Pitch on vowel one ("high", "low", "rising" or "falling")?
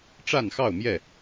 falling